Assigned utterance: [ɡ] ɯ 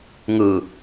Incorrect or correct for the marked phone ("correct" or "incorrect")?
incorrect